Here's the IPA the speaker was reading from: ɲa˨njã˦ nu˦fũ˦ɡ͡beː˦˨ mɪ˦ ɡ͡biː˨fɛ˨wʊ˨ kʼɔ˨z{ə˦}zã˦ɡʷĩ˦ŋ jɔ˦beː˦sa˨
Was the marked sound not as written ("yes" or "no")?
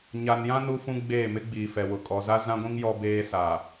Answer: yes